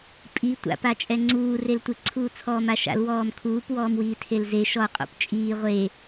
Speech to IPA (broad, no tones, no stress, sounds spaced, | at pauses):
pʼ i tʷ a̰ p a t͡ʃʼ ɛ ŋ͡ǀ uː r e l tʷ ɪ ǀʰ uː t͡sʰ ɔː m a ʃ a̰ l w ɔː m kʰ uː p w ɔː m w iː tʰ e l z e ʃ ɔ qʼ o̰ p t͡ʃʼ iː ʁʷ e